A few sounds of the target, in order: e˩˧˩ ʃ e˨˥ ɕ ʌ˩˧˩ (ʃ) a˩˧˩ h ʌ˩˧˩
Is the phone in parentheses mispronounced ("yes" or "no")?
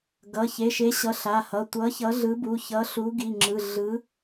yes